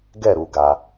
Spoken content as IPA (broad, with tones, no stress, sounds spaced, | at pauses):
ɡ ɛ˥˨ ɾ u˨ ɡ a˨